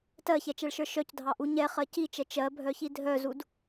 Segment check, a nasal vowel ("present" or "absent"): absent